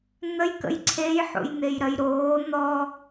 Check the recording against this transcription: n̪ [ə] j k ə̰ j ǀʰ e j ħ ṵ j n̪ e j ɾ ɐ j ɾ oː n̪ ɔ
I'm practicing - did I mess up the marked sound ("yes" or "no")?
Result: no